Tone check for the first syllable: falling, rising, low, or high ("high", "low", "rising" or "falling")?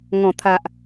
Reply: low